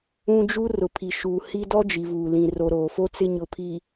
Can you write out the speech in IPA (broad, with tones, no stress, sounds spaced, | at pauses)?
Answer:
ũ˦ d͡ʒ u˦ r ʊ˨ pʰ i˨ ʃ uː˨ h i˦ d ɔ˦ d͡ʒ i˨ v uː˨ l ĩ˨ r o˨ ɾ oː˨ f o˦ t͡s ɪ˦ ɲ ʊ˨ pʰ i˨